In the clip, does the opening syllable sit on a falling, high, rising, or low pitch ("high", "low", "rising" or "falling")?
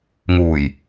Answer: low